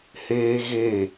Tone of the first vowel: high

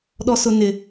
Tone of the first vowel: low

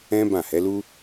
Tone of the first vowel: high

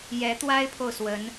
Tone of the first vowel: rising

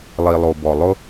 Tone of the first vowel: low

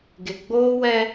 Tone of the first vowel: low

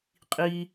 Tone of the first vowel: high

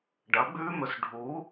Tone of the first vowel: rising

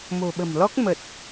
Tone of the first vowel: low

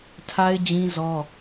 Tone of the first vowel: high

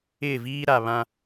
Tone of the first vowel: falling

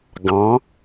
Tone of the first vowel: rising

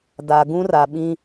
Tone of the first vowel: low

